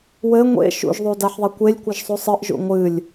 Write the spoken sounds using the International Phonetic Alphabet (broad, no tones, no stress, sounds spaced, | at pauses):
w ɘ ŋʷ ḛ ʃ ṵ ʒ ðˤ u d a ħ ðˤ e kʷ e lʲ kʷ ɘ ʒ sˤ u sˤ ɨ ʔ ʒ ṵ ŋʷ ɨ lʲ